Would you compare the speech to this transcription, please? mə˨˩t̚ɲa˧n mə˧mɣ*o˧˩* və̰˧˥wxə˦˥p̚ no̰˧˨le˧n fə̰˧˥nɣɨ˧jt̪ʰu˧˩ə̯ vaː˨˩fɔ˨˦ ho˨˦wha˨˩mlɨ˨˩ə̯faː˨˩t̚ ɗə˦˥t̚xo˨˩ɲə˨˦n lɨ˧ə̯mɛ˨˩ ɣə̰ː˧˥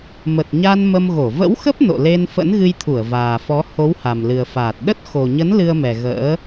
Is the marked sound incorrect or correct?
correct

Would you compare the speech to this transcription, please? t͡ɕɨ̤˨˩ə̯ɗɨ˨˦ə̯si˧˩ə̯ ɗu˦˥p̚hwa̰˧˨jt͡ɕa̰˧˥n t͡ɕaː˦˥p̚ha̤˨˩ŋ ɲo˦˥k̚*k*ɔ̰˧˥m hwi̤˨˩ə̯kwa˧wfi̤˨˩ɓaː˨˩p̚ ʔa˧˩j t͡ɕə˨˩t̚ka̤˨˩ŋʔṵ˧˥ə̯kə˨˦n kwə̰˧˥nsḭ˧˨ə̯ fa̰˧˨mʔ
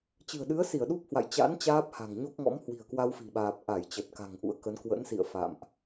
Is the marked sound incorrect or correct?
incorrect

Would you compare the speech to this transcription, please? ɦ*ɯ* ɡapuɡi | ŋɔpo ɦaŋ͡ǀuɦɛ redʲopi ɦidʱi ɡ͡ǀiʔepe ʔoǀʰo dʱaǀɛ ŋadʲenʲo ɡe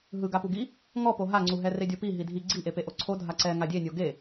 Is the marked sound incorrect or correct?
correct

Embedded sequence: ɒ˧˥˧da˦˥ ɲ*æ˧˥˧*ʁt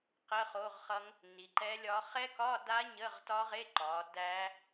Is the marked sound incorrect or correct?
incorrect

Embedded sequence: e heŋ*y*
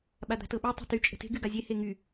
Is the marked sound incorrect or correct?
correct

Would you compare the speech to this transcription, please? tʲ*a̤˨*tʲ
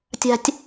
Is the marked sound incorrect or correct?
incorrect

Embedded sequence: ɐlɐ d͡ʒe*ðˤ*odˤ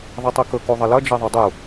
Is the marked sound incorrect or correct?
correct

